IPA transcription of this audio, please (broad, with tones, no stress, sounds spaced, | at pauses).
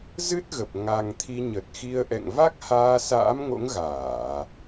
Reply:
z ɨ˦˥ t̚ ɣ ə˨˩ p̚ ŋ a˨˩ ŋ t̪ʰ i˧ ɲ ə˨˩ t̚ x i˧ ə̯ ʔ ɛ̰˧˨ ŋ v a˦˥ k̚ h aː˧ s a̰ː˧˥ m ŋ o̰˧˥ ŋ ɣ aː˧˩˨